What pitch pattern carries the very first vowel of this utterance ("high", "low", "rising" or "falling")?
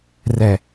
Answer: low